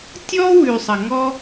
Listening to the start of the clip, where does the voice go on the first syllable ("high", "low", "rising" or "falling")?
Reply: high